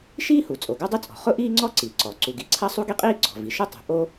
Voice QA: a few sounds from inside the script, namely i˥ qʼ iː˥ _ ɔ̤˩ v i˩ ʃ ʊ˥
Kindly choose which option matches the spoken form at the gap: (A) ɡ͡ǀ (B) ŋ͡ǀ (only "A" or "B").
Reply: A